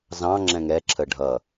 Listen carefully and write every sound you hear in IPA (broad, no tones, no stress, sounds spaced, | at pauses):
z ɑ̃ ŋ͡ǁ ɛ̃ ŋ ɛ ǁʰ ə ɖʱ ʌ